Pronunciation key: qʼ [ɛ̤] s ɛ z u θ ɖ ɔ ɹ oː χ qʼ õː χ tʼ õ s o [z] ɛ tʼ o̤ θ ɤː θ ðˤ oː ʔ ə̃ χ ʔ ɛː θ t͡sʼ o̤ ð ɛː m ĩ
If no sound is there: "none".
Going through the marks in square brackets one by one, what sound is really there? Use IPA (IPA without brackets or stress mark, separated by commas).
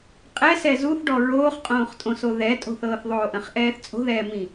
ɛ, ð